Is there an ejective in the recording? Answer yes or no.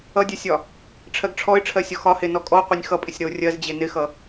yes